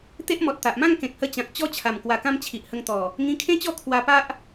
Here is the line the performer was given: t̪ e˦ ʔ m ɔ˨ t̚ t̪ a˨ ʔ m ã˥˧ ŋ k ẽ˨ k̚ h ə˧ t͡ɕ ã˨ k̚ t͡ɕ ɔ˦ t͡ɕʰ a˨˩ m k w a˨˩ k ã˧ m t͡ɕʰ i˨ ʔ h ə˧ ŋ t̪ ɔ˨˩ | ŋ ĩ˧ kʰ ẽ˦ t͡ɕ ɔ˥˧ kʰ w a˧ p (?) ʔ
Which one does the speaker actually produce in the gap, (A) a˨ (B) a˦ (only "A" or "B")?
B